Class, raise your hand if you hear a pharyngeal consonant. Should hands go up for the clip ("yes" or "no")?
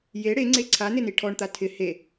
no